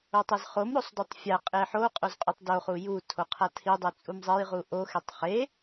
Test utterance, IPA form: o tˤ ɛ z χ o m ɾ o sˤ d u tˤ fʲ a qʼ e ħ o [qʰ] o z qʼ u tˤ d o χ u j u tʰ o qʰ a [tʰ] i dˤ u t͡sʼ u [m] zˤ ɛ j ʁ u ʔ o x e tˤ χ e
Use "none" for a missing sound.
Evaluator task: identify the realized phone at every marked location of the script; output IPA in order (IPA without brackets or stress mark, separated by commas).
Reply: qʼ, tʰ, m